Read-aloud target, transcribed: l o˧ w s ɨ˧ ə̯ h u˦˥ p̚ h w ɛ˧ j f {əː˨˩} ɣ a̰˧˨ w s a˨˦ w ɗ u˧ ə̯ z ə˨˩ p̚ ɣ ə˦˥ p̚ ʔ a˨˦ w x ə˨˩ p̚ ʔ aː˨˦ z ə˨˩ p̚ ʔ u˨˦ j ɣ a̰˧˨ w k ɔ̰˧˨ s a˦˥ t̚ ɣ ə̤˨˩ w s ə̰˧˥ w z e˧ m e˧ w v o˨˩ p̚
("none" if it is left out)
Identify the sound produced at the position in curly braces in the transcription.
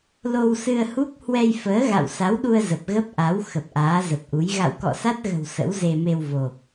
əː˨˦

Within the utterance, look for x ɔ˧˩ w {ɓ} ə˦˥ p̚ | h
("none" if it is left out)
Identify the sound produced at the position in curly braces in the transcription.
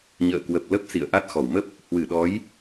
m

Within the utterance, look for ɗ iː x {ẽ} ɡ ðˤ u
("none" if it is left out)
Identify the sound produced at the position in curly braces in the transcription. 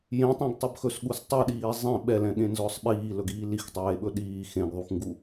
ẽ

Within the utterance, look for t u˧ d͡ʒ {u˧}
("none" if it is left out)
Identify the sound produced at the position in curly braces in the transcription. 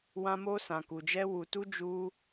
u˧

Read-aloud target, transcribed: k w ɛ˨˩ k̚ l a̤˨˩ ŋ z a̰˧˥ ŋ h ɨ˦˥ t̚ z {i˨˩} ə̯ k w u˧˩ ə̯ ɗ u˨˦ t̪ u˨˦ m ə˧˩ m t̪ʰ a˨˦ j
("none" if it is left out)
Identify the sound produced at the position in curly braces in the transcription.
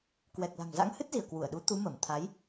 i˧˩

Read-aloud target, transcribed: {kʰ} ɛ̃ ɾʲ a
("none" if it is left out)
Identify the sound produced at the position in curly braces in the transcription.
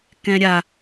k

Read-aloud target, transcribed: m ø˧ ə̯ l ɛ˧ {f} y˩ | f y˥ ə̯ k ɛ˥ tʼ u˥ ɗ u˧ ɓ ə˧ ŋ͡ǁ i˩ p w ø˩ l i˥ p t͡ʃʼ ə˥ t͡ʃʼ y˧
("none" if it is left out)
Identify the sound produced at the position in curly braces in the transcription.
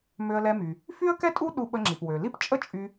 m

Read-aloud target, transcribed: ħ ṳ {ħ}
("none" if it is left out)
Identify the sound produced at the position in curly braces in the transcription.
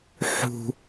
none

